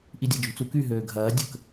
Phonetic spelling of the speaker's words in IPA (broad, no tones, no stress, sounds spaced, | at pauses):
ʔ i dʲ a̤ d͡ʒ ṳ t͡s u k y ɦ øː ɡʱ ɐː dʲ ə k